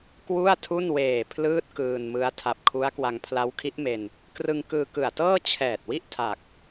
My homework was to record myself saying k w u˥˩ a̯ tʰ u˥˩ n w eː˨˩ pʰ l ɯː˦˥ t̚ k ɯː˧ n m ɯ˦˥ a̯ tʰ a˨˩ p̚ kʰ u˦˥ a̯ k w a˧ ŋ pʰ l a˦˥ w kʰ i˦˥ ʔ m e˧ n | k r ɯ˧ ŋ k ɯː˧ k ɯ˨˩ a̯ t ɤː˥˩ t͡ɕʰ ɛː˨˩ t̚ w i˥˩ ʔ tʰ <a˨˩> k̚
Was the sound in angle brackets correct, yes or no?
yes